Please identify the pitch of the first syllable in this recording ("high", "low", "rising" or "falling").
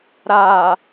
low